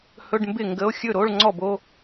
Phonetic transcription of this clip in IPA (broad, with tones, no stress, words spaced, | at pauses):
hɵ˧˥˧ɖmbɪ˥˩ŋɡə˧˥˧o̯ xʲɵ˥˩ɾo˧˥˧ɭŋ͡ǀɔ˥˩b o˧˥˧